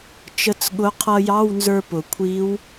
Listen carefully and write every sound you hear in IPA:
t͡ʃ ə˧˥ t͡s ɠ ʊ˧˥ qʰ ʌ˧ j ɑ˧˥˧ w n z ə˞˧ p ʊ˩ kʷʰ i˧˥ w

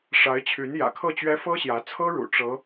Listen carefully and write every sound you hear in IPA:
ʂ a˧˥ ɪ̯ t͡ɕʰ y˧˥ n j ä̰˨˩ kʰ ɤ˥˩ t͡ɕ ɥ ɛ˥ f ɤ˥ ɕ j ä˧˥ t͡sʰ ɤ˥ ɻ ṵ˨˩ ʈ͡ʂ ɤ˧˥

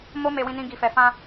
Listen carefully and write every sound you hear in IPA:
m o˦ m e˧ w ĩ˧ n ĩ˧ ɡ i˧ f ɛ˧ f ã˧

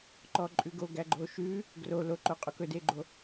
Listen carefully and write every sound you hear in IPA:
ǃ ɔ ǃʼ ʉ ɡ o ɡ æ ɡ͡ǃ o ʃ ʉ | ɡ r o l o ǃ o qʼ o k ɵ d e ɡ͡ǃ o

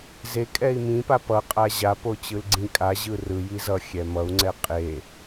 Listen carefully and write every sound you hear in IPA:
z e kʼ ɛ i̯ m ĩ p a p ʌ qʼ a ʑ a p o t͡ɕ ɯ l ɡ͡ǀ ĩ kʼ a ʑ ɯ r ɯ j i z ʌ xʲ ɛ m ʌ u̯ ŋ͡ǀ ɛ qʼ e

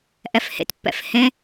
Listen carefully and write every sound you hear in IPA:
ʔ ɛ f h ḛ t pː ɛ̰ f h ẽ

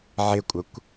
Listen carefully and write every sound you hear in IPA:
ʕ ɪ kʷʼ ə kʷ

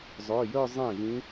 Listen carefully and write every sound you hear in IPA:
zˤ œ˩˧˩ j œ˥˧ zˤ ẽ˥˩ v ĩ˧˥

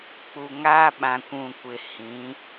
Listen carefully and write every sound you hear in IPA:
k͡p u˨ ŋ aː˦ ɓ ã˨ kʷ ũ˨ kʷ ɪ˨ h ĩ˨˦

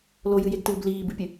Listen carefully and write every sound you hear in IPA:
l o j ɨ j e ɡ t ɨː b l iː b ɨ pʲ ɨ

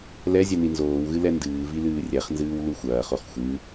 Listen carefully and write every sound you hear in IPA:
l ɛ zʲ ɛ n i n z oː w ɣ ɨ l ɛ n d ɨː v i l ɨː rʲ ɛ χ n z ɨː w l u xʷ ɐː χ o χ xʷ ɨ

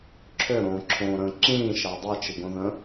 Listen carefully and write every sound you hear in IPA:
ǁʰ ʏ ɾ õː ǁʰ õː ɾ ə̃ː ǁ ĩː ʃ a dˤ e t͡ʃ i ɡ õ ð ə̃ː

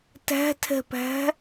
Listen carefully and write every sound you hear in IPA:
t æ̤ tʰ ɛ̤ p æ̤

